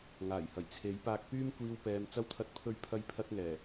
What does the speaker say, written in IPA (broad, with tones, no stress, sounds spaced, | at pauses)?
ŋ aː˨˩ j h ɐ˨˩ j t͡sʰ e˨˥ j p aː˧ k̚ p yː˥ m kʷ iː˧ w p ɛː˨˧ m t͡s ɐ˧ w t̪ʰ ɐ˨˥ t̚ pʰ ɵ˧ ɥ pʰ ɐ˧ j pʰ ɐ˧ t̚ ŋ ɛː˨˩